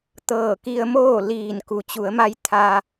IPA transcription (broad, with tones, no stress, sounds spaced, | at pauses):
t̪ ɤː˧˩ k i˧ ə̯ m oː˥˨ l iː˧˩ n k u˩ t͡ɕ u˩˧ ə̯ m a˧ j t̪ʰ a˧